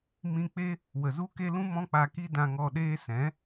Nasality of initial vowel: nasal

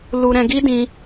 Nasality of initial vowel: oral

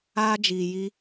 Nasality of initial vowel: oral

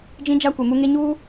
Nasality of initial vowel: nasal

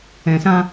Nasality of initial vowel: nasal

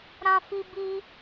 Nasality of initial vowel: nasal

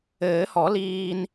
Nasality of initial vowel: oral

